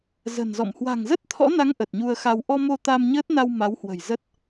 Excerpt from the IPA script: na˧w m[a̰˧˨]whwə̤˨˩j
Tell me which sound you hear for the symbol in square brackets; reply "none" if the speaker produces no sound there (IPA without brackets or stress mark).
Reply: a˨˦